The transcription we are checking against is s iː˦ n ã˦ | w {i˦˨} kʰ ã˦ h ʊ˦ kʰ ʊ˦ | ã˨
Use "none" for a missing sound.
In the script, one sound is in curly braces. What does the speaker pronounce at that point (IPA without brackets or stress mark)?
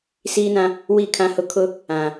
i˦˨